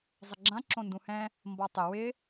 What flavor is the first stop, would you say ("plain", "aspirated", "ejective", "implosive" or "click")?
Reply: click